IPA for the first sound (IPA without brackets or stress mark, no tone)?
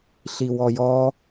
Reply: ɬ